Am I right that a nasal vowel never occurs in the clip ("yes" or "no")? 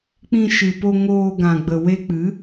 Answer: no